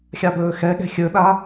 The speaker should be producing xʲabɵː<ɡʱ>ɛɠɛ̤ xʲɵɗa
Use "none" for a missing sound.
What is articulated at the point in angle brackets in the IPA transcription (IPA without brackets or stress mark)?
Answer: x